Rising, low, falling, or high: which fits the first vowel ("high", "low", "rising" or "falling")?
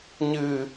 low